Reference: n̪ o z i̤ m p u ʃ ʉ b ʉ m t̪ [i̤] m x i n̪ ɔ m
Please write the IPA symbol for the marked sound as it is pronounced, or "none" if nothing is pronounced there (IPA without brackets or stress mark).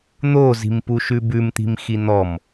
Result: i̤